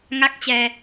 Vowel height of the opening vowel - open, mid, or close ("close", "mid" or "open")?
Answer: open